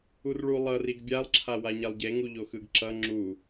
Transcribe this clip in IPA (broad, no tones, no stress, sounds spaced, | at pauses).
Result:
u r ɭ u lˠ ʌ r i ɡ bʲ a lˠ ǁʰ a w a ɲ ɛ lˠ ɟ e ŋ u ʎ o x ɯ ɡ ǁ ʌ ŋ͡ǁ u